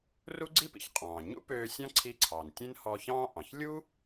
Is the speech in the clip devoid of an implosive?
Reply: yes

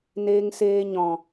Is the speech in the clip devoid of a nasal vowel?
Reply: no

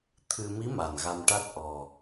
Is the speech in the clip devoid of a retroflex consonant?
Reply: no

